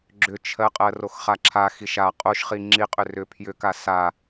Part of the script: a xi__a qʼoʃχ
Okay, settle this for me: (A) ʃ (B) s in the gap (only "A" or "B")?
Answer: A